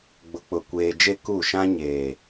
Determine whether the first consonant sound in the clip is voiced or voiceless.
voiced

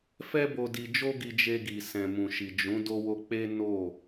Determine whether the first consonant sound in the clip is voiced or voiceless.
voiceless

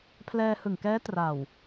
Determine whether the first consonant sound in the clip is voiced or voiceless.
voiceless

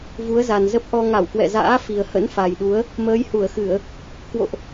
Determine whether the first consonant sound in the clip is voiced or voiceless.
voiced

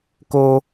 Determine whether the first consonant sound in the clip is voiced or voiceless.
voiceless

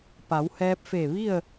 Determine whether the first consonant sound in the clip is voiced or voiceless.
voiceless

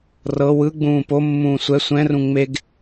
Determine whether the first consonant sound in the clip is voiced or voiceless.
voiced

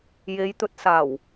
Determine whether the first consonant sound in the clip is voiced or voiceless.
voiced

